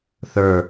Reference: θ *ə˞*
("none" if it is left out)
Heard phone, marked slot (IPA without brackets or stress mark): ə˞